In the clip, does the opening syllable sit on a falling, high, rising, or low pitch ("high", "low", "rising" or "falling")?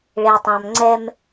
low